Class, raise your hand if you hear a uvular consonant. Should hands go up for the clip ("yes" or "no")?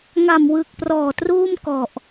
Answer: no